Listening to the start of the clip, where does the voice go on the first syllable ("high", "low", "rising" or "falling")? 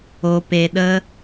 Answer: low